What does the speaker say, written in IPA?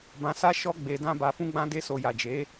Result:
b ã˧ s a˦ ʃ ɔ˦ ɡ͡b e˧ d ã˦ b a˧ f ũ˧ ɡ͡b ã˧ d e˧ s o˨ j a˨ d͡ʒ e˨˦

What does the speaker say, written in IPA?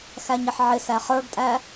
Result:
x æ ɲ ə ħ ʕ ɪ s æ χ ə˞ ɡ tʼ æ

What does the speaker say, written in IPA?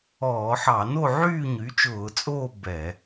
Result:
ɔː˧˩˧ ħ ɑ˧˩˧ n o˥˨ ʕ yː˥˨ ɲ y˩˥ t͡ʃ ʊː˧˩˧ t͡sʼ oː˥˨ b ɛ˧˩˧

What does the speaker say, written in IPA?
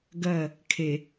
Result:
ɡ ɜ | kʰ e

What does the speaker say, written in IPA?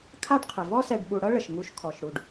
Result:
kʰ a˥ ɖ qʰ ə˩ v ɔ˦ s ɛ˨ ɖ ɓ u˨ ɽ ɤ˥ ɭ ə˩ ʃ ŋ u˨ ʃ kʰ ɔ˩ ʃ ɽ u˩ ɖ

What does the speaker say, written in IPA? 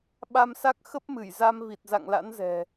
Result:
ɓ a˧ m s a˦˥ k̚ x ə˦˥ p̚ m ɨ˧˩ j z a˧ m v i˨˩ t̚ z a̰˧˨ ŋ l a̰˧˥ n z ɛ̤˨˩

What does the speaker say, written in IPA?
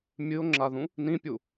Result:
mʲ ɨ o̯ ŋ͡ǁ a ð ũ | n ĩ pʲ u

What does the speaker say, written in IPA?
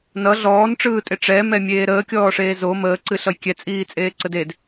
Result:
n ʌ ɮ ɔː n ʈ͡ʂ ɯː tʼ e ʈ͡ʂ ɛ m ɛ mʲ eː ɾ əː kʲ ɔː ʂ eː z o m əː ǀ ɨ ɬ ʌ j kʲ ɛ t͡sʼ iː t͡sʼ eː ǀ ə d e d

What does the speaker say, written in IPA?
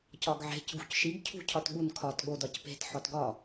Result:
c ɒ ɡ ʕ e̤ c ɡ ṳ c ʃ i ɡ cʰ ṳ cʰ ɒ t ɠ u n kʰ ɒ t ɠ o d ɒ c p e̤ t ħ ɒ t ɡ ɒ

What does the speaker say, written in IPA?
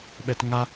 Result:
ɓ ɛ t ŋ a

